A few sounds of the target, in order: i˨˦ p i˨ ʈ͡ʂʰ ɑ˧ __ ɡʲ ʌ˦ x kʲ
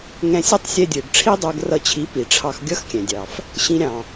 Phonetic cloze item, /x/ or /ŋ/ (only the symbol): x